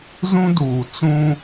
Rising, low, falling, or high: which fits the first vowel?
high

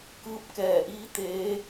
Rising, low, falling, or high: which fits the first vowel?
rising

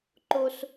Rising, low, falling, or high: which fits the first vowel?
high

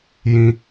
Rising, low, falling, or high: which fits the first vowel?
low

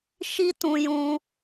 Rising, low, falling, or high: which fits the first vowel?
high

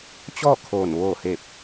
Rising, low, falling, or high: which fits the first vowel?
falling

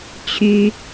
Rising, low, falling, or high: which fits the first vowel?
high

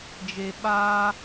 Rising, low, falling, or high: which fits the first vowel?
low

